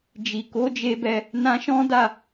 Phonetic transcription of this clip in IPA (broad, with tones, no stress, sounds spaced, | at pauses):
d͡ʒ i˨ k o˨˦ d͡ʒ e˧ b ɛ˧ | n ã˧ ʃ ɔ̃˦ d a˦˨